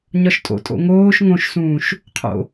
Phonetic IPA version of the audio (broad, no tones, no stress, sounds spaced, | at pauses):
ɲ ɒ ʃ tʼ o̰ tʼ o̰ ŋ oː ʃ ŋ õ ʃ s ũː ʃ | qʰ o̰